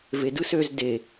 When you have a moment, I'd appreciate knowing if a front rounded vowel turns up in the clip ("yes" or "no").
yes